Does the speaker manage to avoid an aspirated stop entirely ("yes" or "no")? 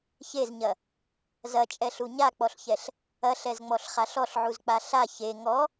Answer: yes